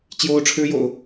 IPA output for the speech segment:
t͡ɕ j o˥ ʊ̯ ʈ͡ʂʰ ɻ̩˥ j o̰˨˩˦ ʊ̯

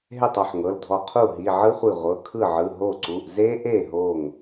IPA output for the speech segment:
ɦ e˥˩ tˤ ɔ˥˩ ħ ŋ ɤ˩˧˩ l dʱ ɔ˧˩ qʰ u˥˩ ɦ i˩˧˩ ʕ ɯ˦˥ χʷ i˧˩ ʁʷ ɤ˩˧˩ kʰ ɯ˥˩ ʕ ɯ˩˧˩ ɦ o˥˩ ǀ u˩˧˩ ʔ z e˦˥ ʔ e˥˩ ɦ o˧˩ ŋ

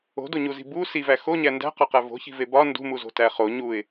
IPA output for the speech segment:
o̤ d o ɲ u z i̤ b u s i v æ x o ɲ æ n d æ̤ q ɒ q æ v o̤ ç i̤ v e b ɒ n d ṳ m u z o̤ t æ χ o ɲ u ɪ̯

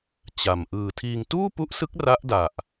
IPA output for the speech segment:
t͡ɕ a˨˩ m ʔ ɯː˨˩ tʰ iː˧ ŋ t uː˥˩ p u˦˥ ʔ s ɯ˦˥ k̚ r a˦˥ ʔ d a˨˩ ʔ

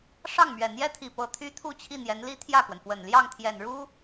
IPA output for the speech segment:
ʂ ɑ˥˩ ŋ m ɥ ɛ˨˩ n̪ j ɛ˥ t̪ʰ i˨˩ p ɤ˧˥ t̪ʰ y˥ t̪ʰ u˥˧ t͡ɕʰ i˥˩ n̪ j ɛ˧˥ n l i˥ t̪ʰ j ä˥˩ k w ə˩ n f w ə˨˩ n l j ɑ˥˩ ŋ t̪ʰ j ɛ˨˩ n ɻ u˥

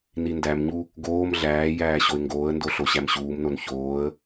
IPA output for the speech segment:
n i n d æ m ɲ u | ɡ oː m ɮ æː j æː ɕ o ɪ̯ ŋ ɡ oː ə̯ n d o ɬ o ɕ æ m ɕ uː m n o n ç oː ə̯

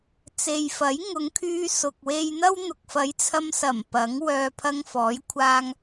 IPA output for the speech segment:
t͡s e˨ j f ɐ˨˥ j ŋ ʊ˨˧ ŋ kʰ yː˧ s ʊ˨ k̚ w e˧ j n̪ ɐ˥ w n̪ ʊ˨ k̚ f ɐ˨˥ j t͡sʰ ɐ˧ m s ɐ˨˩ m p ɐ˨˥ ŋ w œː˨ pʰ ɐ˧ ŋ f ɔː˨˥ j kʷʰ aː˧ ŋ

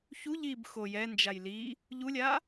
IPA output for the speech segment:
ç u ʎ i b x o j ɛ n d͡ʒ a j l i | ʎ u lʲ a

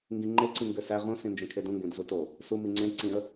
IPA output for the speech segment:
ŋ ɡ ĩ ŋ͡ǃ e ǀ ĩ ŋ ɡ ø s æ ʁ ũ s ĩ n d͡ʒ ẽ kʰ e d ũ ŋ ɡ ẽ d z u t o | s u m i ŋ͡ǀ ẽ ǀ ĩ ə̯

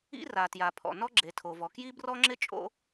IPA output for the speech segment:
ḭ˥ r a˩ t j a˩ pʰ ɔ̰˩ n ɔ˥ ɡ͡ǁ e˩ tʰ o˩ v ɔ˩ k j i˥ b r ɔ˥ ŋ͡ǁ ɪ˥ t͡ʃʼ o̰˥

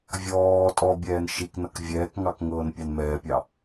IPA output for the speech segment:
vʲ ɔː tʼ ɔ bʲ ɛː n ʃ i k n ʌ k vʲ ɛː k ŋ ɑ k ŋ ɤː n pʲ ɑ n m ɛː pʲ ɑ

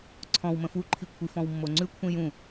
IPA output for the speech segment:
ǀʰ ɔ̃ w m ə̃ f u ǃʰ i kʷʰ i f ɔ̃ w mː o ŋ͡ǀ ʉ kʷʰ ĩ j ũ

